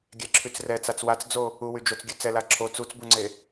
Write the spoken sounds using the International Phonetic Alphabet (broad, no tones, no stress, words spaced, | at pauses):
ɡʲɛǁʰyt͡srɛt͡sat͡s wat͡sd͡zo | uwyd͡ʒot͡sɡʲø t͡sɛla ǁʰo t͡sut͡sbuŋ͡ǀe